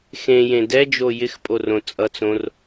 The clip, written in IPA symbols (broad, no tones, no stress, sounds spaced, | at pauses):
x ẽ j ẽ d ɛ d͡ʒ o j ɪ x pʼ o r õ t͡sʼ ʌ t͡s õ r